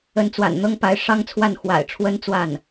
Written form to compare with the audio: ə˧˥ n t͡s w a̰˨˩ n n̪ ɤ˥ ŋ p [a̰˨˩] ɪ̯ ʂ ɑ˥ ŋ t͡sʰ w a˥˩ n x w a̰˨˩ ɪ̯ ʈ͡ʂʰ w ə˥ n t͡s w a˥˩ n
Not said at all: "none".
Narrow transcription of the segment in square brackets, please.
a˧˥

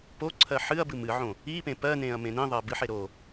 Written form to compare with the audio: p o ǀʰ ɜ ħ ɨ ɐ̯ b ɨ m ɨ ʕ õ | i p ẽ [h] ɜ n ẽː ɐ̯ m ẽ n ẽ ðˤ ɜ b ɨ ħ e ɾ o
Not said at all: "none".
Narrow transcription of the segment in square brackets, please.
p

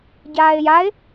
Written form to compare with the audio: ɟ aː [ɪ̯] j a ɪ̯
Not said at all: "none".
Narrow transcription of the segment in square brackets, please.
ɪ̯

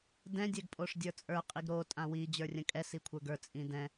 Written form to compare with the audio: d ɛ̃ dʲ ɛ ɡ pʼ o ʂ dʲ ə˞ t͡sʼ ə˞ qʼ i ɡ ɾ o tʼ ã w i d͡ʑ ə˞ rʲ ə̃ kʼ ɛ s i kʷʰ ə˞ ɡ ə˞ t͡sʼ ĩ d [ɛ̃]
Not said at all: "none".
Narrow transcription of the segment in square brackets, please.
ɛ̃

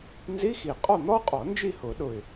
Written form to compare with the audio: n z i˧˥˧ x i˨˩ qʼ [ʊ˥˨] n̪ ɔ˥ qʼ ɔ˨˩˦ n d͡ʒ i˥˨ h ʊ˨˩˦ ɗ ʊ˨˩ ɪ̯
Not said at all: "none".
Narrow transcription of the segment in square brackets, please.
ɔ˥˨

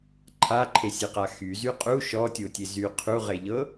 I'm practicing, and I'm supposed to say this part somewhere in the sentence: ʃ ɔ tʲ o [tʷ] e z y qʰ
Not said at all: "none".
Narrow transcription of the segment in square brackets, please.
tʲ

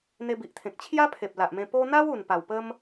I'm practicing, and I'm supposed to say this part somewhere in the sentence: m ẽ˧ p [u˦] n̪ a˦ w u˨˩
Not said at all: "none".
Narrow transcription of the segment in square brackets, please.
o˦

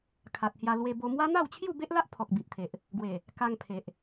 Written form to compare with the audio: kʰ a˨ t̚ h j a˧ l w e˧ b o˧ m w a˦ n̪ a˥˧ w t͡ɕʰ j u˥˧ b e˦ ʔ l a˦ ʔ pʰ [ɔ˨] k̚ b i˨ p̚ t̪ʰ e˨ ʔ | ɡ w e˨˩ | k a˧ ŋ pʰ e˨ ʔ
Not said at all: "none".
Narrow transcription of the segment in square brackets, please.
ɔ˨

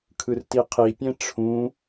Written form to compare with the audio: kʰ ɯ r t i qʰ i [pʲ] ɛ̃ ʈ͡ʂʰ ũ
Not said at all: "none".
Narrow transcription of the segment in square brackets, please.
pʲ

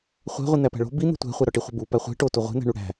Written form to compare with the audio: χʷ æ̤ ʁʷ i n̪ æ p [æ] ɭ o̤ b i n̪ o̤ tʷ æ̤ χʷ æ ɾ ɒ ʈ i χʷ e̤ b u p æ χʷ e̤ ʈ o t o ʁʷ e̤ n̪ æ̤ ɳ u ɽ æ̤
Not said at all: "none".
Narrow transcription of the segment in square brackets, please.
æ̤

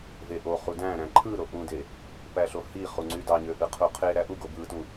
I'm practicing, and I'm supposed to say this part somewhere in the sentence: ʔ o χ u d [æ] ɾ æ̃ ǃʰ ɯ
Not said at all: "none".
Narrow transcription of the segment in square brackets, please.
æ̃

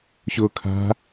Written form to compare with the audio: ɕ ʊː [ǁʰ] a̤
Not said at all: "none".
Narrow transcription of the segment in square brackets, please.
kʰ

